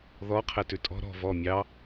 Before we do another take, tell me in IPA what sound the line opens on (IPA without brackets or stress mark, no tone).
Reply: ð